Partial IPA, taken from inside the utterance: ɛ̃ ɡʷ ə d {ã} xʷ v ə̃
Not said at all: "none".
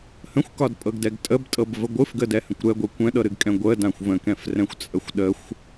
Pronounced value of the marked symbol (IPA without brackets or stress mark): ã